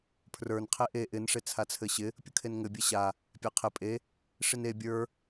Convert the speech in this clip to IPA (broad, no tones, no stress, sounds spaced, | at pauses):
pʰ r ə˞ n qʰ e ʔ e ʔ ɪ n ʂ e t͡sʰ a t͡sʰ ɘ ɕ ɪ | pʲ ʊ kʰ e n ŋ ɘ bʲ ɘ ɕ a | pʲ a qʰ ɪ pʼ e | ʂ i n e bʲ ə˞